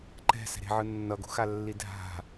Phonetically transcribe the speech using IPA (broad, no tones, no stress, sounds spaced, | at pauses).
ǃ ɛ̤ s ɛ̤ ɾ e̤ ʕ ɯ nː ʌ ɡ o̤ x a lː i dʱ a̤